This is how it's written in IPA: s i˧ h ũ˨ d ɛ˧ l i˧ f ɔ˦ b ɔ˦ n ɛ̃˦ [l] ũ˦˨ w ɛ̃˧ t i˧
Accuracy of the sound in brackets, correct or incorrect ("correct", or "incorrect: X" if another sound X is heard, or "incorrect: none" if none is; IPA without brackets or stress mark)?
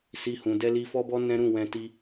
incorrect: ɾ